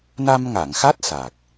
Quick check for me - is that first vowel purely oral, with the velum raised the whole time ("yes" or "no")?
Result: yes